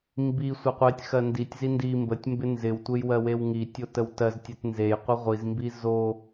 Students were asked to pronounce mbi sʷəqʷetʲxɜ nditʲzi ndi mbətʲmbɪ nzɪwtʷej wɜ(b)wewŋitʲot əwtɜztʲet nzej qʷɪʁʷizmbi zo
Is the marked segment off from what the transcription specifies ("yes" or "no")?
yes